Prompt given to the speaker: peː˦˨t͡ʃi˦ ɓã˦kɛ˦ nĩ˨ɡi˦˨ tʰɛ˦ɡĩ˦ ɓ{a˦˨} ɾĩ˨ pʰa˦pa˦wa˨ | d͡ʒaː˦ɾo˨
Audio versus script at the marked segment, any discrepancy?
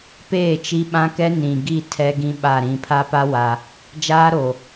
no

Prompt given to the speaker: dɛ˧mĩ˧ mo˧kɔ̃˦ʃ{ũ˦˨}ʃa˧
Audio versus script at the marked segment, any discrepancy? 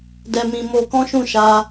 no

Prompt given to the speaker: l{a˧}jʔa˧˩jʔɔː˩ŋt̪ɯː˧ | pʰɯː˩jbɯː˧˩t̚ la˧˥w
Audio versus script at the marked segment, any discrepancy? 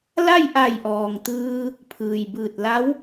yes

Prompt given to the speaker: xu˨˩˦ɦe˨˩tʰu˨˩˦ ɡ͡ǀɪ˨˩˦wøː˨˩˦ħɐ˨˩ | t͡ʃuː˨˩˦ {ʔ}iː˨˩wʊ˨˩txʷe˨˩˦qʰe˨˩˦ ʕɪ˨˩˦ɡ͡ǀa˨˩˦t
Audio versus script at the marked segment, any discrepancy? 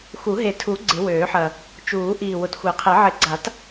no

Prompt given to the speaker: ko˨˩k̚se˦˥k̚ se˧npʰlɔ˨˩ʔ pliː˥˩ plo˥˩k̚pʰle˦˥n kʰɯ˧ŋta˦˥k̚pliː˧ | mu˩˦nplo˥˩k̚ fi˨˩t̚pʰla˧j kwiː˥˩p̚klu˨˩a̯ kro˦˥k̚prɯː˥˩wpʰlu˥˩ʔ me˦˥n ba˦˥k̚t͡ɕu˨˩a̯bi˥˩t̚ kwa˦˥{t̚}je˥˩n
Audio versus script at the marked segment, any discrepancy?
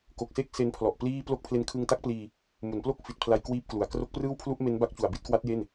no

